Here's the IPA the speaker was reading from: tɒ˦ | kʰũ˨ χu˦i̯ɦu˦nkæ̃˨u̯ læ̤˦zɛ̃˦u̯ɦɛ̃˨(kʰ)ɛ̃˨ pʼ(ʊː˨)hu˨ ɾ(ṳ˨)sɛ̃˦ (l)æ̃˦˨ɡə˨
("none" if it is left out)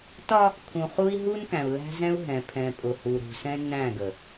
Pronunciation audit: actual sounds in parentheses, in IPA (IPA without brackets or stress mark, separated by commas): pʰ, ʊ˨, ṳ˨, n